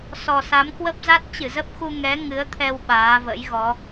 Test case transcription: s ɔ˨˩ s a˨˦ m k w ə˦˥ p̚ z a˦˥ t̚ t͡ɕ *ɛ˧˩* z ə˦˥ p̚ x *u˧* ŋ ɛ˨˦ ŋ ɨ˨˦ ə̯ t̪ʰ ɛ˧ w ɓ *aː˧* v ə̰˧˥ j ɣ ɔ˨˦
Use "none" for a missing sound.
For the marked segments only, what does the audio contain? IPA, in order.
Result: ɨ˧˩, u˧, aː˨˦

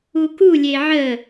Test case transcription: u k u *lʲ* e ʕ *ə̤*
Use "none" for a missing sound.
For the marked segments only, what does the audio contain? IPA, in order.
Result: lʲ, ə

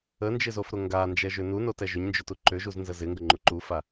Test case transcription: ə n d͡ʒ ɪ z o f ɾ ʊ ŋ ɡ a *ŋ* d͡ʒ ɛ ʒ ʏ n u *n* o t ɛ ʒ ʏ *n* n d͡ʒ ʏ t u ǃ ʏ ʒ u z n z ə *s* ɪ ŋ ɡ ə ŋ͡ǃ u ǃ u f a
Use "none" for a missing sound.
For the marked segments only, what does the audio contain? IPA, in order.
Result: n, n, ɲ, z

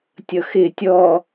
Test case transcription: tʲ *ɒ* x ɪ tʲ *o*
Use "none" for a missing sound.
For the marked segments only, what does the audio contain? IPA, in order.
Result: ʌ, ɔ

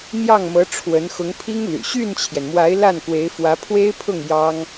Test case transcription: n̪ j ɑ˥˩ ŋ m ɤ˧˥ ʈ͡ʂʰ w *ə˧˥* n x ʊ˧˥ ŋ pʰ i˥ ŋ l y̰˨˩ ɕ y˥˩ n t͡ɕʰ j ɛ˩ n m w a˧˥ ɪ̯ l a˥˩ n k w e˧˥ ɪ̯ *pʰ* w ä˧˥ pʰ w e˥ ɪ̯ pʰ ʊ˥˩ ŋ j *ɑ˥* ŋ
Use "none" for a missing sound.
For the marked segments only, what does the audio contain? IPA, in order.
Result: ə˧˥, f, ɑ˥

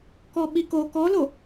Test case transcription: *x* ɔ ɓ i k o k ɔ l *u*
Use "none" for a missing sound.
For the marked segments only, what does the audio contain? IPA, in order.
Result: k, o

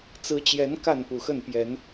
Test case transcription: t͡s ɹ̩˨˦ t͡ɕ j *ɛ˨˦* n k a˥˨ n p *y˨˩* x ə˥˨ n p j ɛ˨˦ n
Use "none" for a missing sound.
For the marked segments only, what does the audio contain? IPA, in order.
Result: ɛ˨˦, u˨˩

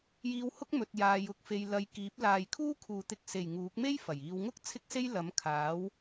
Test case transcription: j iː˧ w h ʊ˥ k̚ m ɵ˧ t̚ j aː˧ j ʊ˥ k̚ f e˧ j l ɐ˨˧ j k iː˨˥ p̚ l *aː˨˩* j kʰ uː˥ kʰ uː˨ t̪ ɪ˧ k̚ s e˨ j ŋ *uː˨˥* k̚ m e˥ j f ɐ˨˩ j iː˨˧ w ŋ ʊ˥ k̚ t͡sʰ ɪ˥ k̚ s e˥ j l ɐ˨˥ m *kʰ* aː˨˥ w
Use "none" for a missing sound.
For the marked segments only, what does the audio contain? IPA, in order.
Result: aː˨, uː˨˥, kʰ

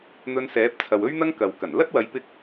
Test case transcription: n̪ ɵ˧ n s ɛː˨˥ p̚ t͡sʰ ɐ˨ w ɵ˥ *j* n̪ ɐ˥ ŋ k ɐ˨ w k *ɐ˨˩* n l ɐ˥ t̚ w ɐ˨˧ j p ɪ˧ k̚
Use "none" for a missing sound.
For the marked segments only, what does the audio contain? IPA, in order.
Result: ɥ, ɐ˨˩

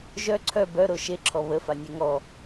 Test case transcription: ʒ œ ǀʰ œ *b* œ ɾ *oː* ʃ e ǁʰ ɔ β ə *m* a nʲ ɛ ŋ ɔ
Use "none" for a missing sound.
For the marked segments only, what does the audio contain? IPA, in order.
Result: b, o, f

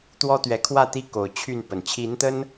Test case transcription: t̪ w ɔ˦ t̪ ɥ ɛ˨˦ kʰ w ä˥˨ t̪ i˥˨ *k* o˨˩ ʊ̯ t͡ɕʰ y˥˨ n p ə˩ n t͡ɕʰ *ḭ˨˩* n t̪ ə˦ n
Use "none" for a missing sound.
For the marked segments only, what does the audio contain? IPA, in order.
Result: k, i˨˦

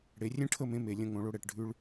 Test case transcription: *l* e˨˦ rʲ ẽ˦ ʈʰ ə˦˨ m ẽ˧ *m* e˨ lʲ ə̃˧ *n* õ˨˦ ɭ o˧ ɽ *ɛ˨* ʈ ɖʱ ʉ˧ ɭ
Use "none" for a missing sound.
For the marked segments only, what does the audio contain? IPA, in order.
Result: ɽ, m, ŋ, ɛ˨

